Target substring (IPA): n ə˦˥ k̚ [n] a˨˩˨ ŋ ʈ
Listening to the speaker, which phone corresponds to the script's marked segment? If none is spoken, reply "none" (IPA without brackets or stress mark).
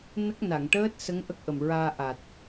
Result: n